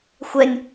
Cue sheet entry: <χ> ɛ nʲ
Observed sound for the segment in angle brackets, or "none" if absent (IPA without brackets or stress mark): xʷ